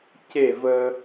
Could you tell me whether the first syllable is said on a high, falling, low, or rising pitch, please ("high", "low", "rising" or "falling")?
falling